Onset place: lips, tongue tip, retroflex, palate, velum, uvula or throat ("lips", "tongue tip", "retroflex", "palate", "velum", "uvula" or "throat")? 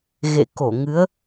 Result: velum